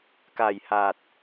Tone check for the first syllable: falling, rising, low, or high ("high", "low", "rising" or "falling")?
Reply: low